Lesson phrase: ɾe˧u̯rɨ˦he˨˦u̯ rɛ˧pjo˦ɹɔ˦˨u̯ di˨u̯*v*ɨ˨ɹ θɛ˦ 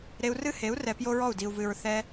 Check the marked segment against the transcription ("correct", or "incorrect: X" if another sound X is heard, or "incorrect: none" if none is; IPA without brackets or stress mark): correct